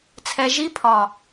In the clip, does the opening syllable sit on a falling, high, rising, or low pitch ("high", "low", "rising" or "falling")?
low